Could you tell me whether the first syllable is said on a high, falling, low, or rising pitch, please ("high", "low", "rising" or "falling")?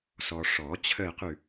low